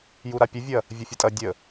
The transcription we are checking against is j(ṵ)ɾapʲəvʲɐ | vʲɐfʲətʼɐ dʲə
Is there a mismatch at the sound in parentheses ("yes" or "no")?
yes